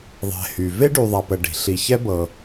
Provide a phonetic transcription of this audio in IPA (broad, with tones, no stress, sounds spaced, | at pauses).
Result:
ðˤ ɛ̤˨ h y˩ v e˥ ɖ y˨ ðˤ a˨ p ə˨ ɖ i̤˩ ɬ i˨ ç ɛ˦ b ɤ˨